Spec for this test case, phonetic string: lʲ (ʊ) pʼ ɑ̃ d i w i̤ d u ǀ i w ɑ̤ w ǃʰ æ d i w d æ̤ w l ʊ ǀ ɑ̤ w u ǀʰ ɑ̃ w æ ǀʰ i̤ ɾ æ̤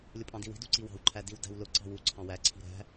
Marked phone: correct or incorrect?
correct